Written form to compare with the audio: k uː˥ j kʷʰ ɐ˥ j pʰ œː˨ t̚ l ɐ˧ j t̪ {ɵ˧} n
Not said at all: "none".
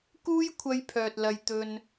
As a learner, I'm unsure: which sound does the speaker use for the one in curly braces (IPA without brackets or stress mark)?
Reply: ɵ˧